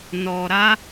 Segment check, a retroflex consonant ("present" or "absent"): absent